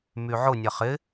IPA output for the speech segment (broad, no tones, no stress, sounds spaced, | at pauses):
m y ʕ ʊ nʲ ɐ χ ɪ